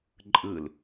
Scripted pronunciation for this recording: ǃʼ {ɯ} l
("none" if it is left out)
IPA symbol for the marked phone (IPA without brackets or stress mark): ɯ